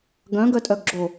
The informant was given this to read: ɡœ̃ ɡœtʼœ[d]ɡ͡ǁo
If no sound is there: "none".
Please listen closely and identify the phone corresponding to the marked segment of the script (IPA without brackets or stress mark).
ɡ